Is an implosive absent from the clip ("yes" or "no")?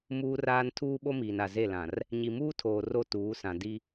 no